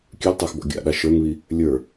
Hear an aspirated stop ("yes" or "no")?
no